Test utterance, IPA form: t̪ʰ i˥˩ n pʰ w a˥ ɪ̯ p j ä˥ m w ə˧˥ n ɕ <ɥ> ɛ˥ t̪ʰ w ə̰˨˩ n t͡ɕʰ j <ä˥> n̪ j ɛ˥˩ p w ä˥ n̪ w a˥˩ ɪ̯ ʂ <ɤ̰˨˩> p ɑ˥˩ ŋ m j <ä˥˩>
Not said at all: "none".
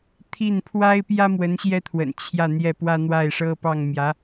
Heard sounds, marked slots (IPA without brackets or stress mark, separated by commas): j, ä˥˧, ɤ˥, ä˧˥